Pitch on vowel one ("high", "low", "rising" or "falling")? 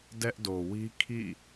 high